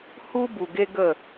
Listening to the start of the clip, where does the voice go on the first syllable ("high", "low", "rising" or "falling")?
high